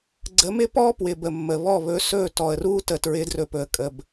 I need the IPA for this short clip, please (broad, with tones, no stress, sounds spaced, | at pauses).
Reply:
ɡ͡ǀ ə˨˦ m ɪ˦ p ɔ˦ p w ɪ˨ b ə˨ mː ə˨ β ɔ˦˨ β ɵ˧ s ɵ˦˨ t ɔ˨ ə̯ r u˦ t ə˨ t ɹ ɪ˨˦ d r ɵ˨ p ɵ˨ ə̯ kʼ ə˨ b